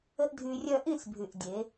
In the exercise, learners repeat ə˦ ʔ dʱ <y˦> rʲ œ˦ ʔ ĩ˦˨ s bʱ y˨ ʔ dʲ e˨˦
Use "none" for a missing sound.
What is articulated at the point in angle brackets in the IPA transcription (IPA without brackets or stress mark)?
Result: y˧